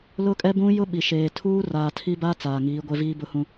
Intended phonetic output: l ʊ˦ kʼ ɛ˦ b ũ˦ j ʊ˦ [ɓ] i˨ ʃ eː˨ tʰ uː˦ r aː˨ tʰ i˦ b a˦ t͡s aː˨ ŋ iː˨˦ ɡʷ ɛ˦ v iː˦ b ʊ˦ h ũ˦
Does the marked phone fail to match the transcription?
no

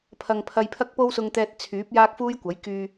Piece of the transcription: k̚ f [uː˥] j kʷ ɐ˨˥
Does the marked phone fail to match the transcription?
no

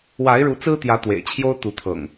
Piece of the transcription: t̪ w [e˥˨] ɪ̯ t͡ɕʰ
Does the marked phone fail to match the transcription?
yes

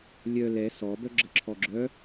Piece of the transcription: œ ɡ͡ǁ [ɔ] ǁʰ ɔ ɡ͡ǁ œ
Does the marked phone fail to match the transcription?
yes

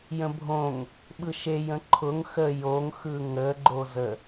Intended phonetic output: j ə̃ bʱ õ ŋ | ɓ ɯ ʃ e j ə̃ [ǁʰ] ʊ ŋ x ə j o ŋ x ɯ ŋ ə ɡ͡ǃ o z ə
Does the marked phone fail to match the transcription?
yes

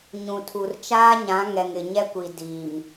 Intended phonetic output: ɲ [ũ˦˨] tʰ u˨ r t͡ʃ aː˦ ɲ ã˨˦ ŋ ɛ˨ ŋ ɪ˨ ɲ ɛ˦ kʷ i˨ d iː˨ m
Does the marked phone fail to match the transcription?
yes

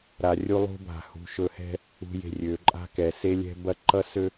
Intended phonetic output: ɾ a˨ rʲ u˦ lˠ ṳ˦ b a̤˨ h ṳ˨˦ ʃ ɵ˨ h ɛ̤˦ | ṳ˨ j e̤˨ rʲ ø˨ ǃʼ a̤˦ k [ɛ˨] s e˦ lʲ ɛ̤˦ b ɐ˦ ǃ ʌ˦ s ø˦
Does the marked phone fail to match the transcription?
no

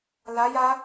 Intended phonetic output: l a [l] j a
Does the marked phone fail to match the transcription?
yes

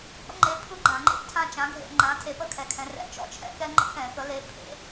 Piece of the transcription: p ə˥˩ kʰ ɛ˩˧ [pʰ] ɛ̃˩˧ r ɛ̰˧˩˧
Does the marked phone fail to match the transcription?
yes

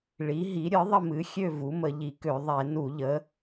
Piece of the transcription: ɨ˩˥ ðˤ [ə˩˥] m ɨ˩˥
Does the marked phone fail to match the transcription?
yes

